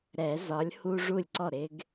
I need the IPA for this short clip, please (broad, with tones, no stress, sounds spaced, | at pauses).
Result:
ɾ ɛ˨˩˦ z ɒ˨˥ lʲ h u˦ ʐ u˥˩ lʲ ǀ ɔ˥˩ ɾ ɪ˦ ɡ